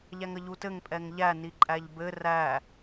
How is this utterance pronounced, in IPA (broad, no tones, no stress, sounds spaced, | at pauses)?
ʎ æ ŋ ə ʎ u t ɘ ŋ pʼ ɛ ŋ ʎ æ n i ǃʼ æ ʎ b ɘ r æ